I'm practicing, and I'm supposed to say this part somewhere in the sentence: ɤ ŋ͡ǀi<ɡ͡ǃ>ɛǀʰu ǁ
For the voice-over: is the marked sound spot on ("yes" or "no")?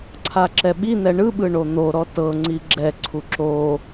no